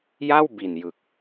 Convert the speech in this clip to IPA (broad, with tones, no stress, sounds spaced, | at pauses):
j a˥˩ w b i˨˩ n j ɯ˨˩ k̚